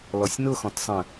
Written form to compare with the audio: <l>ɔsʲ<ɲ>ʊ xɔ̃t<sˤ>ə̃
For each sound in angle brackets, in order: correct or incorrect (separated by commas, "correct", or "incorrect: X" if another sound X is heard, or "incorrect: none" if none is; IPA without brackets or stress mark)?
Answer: correct, incorrect: n, correct